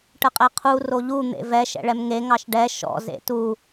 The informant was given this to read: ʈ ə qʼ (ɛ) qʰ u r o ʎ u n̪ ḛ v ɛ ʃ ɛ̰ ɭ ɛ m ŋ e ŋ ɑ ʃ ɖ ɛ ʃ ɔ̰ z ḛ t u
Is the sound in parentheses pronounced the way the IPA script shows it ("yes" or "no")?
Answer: yes